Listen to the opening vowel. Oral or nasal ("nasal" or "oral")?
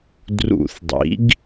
oral